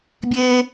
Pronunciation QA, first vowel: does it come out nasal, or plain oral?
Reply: oral